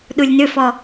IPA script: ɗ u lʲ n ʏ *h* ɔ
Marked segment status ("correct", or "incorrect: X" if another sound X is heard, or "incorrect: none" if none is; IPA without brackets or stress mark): incorrect: f